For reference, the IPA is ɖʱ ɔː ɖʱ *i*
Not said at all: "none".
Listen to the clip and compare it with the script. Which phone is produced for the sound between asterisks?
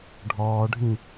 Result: ĩ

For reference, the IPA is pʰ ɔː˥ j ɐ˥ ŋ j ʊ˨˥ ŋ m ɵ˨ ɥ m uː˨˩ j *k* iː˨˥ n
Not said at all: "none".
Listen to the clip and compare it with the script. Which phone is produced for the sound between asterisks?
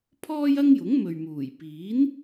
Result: p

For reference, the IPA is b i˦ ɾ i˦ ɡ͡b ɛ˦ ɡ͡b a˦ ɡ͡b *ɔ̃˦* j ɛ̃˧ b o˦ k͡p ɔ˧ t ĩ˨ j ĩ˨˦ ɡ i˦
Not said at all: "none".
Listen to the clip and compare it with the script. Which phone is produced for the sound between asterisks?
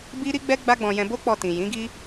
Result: ɔ̃˧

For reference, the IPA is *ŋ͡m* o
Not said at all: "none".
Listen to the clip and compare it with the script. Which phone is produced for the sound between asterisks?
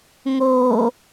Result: ŋ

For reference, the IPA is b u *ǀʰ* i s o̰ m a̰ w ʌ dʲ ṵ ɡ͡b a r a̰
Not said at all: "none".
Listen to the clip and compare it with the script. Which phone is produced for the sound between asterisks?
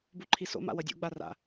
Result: ǃʰ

